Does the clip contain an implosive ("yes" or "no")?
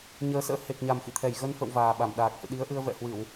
yes